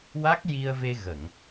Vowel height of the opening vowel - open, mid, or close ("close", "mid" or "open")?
open